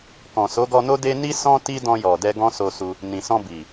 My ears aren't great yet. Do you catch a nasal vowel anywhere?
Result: yes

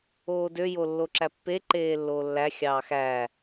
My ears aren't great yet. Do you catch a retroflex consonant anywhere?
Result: no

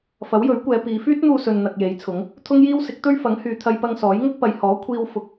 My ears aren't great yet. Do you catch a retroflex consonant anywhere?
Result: no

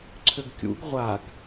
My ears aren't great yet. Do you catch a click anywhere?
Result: yes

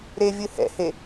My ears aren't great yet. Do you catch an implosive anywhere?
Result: no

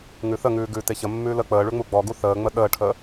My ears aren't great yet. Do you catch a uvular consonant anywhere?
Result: no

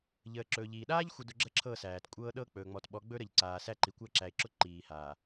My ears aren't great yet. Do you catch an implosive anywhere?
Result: yes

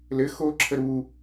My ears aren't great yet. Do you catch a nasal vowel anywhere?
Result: no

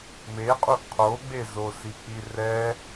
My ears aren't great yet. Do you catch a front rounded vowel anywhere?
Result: no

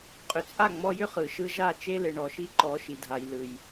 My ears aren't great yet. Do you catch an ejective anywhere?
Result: yes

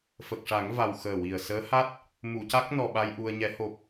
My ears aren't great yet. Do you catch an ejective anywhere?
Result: no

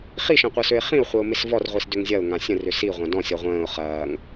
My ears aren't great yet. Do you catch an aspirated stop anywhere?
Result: no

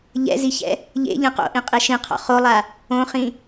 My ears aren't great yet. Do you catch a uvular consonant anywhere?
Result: yes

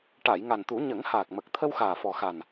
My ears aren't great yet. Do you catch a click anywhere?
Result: no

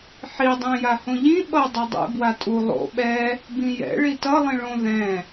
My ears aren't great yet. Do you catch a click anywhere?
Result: no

